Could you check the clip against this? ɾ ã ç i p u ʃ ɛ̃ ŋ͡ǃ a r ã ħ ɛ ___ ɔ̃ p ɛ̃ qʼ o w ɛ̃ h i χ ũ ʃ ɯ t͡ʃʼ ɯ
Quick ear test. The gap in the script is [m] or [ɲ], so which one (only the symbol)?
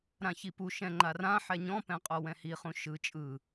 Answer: ɲ